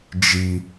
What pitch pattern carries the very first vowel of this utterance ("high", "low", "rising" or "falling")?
low